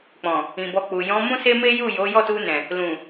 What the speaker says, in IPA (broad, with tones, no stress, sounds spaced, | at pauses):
k͡p ɔ̃˨ | ĩ˨ b ɔ˧ k͡p u˨ j ɔ̃˨˦ m ũ˦ s e˦ m e˦ j u˦˨ j o˨˦ j ɔ˦˨ t u˧ n ɛ̃˨ | l ũ˨